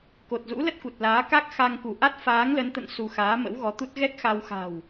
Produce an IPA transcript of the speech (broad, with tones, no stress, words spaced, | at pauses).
ko˨˩t̚zṵ˧˥ lə˦˥t̚ku˨˩t̚ laː˨˦ka˦˥k̚ xa˧ŋku˧˩ʔa˦˥t̚ faː˨˦ŋlə˨˦nt̪ə̰˧˨n su˧ xaː˨˦mə̰˧˥wɣɔ˨˦t̪u˦˥t̚ ɣɛ˦˥k̚xa˧wxa̤˨˩w